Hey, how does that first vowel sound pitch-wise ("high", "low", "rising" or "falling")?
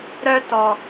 high